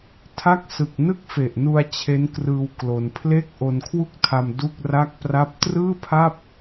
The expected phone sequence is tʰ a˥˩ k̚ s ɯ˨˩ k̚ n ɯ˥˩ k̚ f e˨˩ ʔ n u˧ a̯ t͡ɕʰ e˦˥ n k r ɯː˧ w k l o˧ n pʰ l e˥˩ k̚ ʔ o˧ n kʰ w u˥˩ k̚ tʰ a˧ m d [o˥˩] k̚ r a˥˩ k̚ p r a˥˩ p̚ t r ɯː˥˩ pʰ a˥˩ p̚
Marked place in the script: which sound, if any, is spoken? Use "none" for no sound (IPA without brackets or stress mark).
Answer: u˥˩